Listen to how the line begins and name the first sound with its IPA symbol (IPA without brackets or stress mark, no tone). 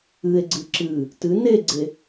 ɨ